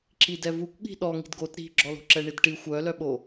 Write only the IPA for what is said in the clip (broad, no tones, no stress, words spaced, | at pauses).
ǁidɛvukʷ ɠi̤ɗɔ ŋi̤dɡot ɾi̤ɡ͡ǁɔlo̤ǁɛ ɳidʈi xʷœlœɓo